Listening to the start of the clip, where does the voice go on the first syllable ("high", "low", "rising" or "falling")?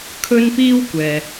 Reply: high